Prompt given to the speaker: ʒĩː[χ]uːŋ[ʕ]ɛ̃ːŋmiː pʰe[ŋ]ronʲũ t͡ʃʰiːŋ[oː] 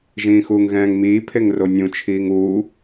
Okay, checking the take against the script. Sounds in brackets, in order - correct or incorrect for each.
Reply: incorrect: x, incorrect: ɣ, correct, incorrect: uː

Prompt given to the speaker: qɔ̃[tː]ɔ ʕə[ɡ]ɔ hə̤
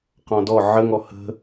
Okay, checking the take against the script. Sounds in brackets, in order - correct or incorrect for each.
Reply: incorrect: d, incorrect: ŋ

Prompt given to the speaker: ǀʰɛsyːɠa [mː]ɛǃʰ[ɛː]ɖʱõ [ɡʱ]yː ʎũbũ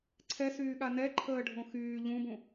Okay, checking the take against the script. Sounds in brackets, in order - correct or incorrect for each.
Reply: incorrect: n, incorrect: əː, incorrect: x

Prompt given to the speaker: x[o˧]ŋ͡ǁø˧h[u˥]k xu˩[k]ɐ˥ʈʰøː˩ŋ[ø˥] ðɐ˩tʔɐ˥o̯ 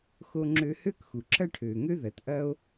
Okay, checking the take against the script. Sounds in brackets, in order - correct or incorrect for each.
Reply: correct, incorrect: ø˥, incorrect: ǁ, correct

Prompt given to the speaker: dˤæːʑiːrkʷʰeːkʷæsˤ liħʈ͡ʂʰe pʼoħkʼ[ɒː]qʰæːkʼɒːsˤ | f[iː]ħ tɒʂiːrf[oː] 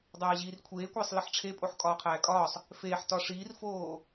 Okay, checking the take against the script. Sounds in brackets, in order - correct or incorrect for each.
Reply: correct, incorrect: eː, correct

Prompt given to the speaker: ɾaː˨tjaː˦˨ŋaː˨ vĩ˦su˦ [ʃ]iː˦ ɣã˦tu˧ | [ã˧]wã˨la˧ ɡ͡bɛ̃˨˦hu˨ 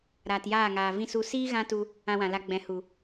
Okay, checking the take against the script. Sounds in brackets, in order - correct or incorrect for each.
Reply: incorrect: s, correct

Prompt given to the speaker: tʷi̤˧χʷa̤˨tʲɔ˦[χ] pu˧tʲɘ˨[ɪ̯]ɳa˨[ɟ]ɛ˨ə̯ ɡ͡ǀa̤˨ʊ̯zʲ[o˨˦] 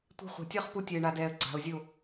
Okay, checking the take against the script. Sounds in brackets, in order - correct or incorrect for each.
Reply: correct, correct, incorrect: d, incorrect: o˦˨

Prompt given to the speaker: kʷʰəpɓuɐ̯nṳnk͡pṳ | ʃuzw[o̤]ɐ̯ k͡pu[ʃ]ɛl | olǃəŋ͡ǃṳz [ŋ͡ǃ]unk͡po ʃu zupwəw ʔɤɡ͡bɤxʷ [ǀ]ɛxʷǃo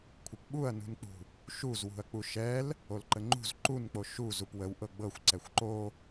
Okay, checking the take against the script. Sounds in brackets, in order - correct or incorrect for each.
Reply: incorrect: ṳ, correct, incorrect: ǃ, correct

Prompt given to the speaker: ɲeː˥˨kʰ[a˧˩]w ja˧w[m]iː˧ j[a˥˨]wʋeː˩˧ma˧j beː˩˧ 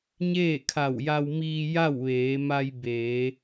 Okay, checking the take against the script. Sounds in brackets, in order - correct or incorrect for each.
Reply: correct, correct, correct

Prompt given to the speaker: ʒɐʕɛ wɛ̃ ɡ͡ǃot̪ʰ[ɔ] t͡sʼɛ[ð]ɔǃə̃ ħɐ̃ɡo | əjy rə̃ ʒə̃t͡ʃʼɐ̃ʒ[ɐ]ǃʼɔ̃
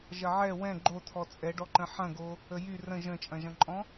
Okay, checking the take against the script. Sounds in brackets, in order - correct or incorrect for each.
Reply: correct, incorrect: ɖ, incorrect: ɐ̃

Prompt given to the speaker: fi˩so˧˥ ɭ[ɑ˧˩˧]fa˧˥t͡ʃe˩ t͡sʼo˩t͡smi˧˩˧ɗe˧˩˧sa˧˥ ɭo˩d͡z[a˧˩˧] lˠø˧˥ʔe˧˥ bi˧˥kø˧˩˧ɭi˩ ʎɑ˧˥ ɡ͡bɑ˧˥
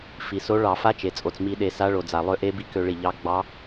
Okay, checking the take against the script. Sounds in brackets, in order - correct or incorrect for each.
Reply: correct, incorrect: a˩

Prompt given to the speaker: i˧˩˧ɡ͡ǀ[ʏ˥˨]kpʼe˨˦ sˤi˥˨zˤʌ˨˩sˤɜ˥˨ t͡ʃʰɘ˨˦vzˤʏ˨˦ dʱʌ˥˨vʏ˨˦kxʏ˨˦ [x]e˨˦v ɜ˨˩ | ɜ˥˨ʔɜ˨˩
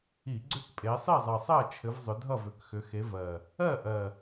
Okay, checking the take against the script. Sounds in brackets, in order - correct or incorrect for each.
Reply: correct, correct

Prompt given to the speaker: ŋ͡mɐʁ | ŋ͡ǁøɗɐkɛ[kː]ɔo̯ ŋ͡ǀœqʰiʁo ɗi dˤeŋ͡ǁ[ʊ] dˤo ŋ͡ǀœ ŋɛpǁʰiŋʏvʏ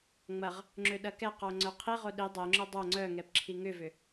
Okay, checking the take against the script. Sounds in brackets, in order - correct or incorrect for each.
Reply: incorrect: q, correct

